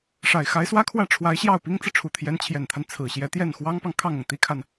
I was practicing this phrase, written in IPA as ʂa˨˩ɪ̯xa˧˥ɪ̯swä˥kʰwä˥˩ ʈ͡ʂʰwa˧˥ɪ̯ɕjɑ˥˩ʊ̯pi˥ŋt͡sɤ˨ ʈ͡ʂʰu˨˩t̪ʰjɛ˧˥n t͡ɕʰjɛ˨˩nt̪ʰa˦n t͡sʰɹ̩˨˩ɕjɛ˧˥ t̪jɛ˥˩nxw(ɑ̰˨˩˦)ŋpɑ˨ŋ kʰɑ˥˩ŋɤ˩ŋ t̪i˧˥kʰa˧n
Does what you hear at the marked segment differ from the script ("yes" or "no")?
yes